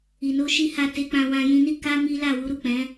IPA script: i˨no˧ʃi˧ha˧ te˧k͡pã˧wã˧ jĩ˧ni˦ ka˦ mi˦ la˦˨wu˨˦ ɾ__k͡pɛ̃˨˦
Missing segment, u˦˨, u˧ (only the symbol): u˦˨